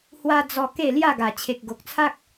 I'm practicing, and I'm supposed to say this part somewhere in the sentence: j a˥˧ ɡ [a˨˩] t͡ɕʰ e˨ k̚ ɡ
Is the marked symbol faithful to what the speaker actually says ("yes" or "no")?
yes